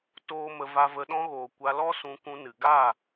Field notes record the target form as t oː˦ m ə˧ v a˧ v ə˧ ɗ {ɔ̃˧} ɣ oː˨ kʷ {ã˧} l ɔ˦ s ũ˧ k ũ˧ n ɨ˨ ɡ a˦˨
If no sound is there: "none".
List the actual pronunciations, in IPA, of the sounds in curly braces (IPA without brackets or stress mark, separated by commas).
ɔ̃˧, a˧